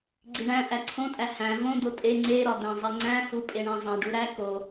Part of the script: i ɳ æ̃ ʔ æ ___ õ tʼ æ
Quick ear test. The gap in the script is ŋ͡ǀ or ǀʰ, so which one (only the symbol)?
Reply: ǀʰ